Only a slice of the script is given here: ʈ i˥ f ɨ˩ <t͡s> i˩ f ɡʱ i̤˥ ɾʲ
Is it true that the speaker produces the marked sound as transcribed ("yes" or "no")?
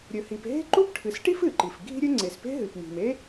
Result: no